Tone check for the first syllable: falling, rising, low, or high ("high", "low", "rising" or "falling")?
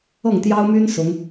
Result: falling